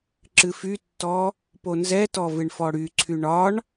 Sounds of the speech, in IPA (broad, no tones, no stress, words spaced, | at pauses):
ǁɨfytːɔ | ponzɛtɔ vɨɳfɔɽyǀʰy ɳɒɳ